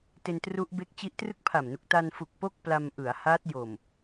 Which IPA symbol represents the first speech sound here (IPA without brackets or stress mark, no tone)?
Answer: t